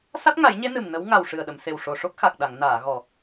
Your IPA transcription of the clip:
s a˦˥ t̚ ŋ a˨˩˦ j ɲ e˧˥ n ɨ˨˩ m n ə˧˥ w ŋ a˨˩ w ʂ ɨ˨˩ ə̯ ɗ ə˨˩˨ m s e˨˩ w ʂ o˨˩ ʂ o˦˥ k̚ x a˨˩ k̚ ɗ a˨˩˨ ŋ n aː˨˩˨ ɣ ɔ˨˩

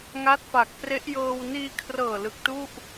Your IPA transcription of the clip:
ŋ a˦˥ t̚ f a˨˩ k̚ p r e˦˥ ʔ j ɤː˧ w n iː˧ kʰ r ɤː˨˩ l ɯ˨˩ k̚ t u˥˩ ʔ

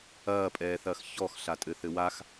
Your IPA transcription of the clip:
ɐː pʼ ɛː θ ɐː x ç ɔ x ɬ a tʼ ɘ θ ɘ w a x

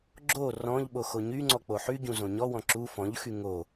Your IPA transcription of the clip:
ɡ͡ǁ o r ɔ̃ ʎ ɓ o x o ɲ y ŋ͡ǀ ɔ k͡p o ħ y ɟ ũ z õ ɲ ɔ w ɔ̃ ǁ u f ɔ̃ ʎ x y ŋ o

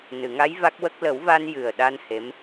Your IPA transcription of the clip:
n ɨ˨˩˨ ŋ a˧˥ j v a˦˥ k̚ w ə˦˥ k̚ l ə˨˩˦ w v a˧ n j ɨ˨˩ ə̯ ɗ a˧ n h e˧˥ m

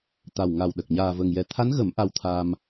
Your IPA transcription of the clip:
t̪ a˨˩ w ŋ a˨˩ w ɗ ə˨˩ k̚ ɲ aː˨˩ v ə˨˩ ŋ j ɛ˨˩ t̪ʰ a˧˥ n ɣ ə˨˩˦ m ʔ a˧ w t̪ʰ a˧ m

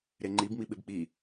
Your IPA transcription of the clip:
ɾ e ŋ͡ǃ i b m i ɓ ɪ b k͡p i

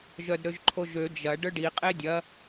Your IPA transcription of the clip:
ʒ œ d ɾ ø ʒ ǃʰ o ʒ ø d͡ʒ ɐ ɖ œ ɖ i qʼ e dʲ ɐ

